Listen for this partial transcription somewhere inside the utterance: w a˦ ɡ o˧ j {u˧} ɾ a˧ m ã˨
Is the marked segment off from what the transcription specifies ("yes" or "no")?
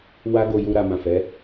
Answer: no